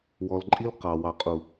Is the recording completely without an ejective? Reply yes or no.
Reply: no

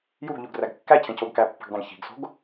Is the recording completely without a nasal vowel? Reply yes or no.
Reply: no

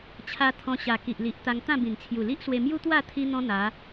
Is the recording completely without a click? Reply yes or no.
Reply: yes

